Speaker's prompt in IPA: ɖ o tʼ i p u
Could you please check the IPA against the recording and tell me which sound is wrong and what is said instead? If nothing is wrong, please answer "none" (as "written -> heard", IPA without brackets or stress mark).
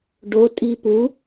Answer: none